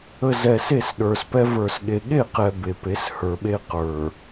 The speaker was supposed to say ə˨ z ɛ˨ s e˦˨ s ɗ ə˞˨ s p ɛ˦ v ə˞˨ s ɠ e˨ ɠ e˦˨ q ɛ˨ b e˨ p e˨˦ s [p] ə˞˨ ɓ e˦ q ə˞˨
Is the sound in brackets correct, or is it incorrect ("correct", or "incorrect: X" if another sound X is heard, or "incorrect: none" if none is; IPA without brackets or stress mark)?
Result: incorrect: h